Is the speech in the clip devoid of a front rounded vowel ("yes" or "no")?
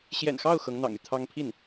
no